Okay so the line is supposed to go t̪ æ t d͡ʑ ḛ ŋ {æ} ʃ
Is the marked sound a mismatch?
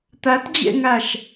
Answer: no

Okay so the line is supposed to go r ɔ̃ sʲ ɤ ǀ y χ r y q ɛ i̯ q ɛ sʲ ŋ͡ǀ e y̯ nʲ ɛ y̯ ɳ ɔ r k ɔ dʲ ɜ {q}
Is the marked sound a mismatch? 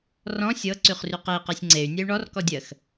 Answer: yes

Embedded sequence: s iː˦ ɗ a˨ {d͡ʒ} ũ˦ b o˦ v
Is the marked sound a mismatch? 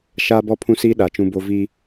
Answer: yes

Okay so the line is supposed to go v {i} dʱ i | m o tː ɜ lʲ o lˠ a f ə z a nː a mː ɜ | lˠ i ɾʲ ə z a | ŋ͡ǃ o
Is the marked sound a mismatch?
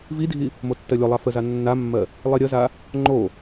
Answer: no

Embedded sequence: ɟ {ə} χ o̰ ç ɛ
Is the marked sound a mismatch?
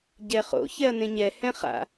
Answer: yes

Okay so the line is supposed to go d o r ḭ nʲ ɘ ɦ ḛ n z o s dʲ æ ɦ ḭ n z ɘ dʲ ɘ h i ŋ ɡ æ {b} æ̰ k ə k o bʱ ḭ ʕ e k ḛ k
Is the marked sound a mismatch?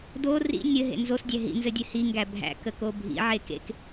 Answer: yes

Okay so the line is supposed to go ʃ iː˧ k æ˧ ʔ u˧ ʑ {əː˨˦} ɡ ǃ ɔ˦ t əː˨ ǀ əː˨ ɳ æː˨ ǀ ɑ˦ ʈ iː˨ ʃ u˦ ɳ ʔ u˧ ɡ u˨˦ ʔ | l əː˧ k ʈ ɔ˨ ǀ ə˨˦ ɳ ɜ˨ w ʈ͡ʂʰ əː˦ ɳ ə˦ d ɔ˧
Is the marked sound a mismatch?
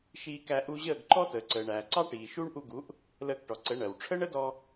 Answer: yes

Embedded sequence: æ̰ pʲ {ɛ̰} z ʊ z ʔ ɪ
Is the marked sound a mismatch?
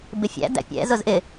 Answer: no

